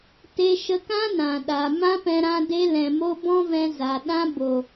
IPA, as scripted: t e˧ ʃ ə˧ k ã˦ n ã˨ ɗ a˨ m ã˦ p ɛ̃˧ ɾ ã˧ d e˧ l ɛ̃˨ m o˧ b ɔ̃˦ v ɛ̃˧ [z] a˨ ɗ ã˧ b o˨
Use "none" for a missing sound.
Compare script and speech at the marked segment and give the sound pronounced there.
z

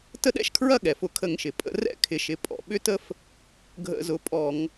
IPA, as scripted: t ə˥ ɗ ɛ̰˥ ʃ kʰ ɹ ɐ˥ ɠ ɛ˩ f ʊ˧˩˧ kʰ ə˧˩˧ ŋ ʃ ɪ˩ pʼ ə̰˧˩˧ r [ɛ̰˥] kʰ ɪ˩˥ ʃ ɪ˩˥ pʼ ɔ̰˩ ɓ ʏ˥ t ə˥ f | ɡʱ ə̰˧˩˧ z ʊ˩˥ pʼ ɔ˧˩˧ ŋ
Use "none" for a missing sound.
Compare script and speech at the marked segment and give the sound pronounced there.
ɛ̰˥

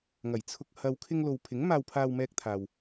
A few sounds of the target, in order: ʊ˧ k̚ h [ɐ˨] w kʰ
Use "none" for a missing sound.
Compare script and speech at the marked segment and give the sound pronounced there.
ɐ˨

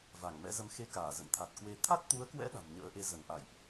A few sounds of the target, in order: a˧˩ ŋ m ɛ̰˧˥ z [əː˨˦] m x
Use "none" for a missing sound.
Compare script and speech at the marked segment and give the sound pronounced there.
ə˨˦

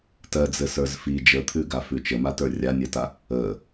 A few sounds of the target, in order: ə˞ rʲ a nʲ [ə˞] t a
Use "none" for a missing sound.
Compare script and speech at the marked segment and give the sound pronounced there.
ɜ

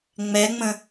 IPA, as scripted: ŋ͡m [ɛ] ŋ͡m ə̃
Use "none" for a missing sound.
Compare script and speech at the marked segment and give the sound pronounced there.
ɛ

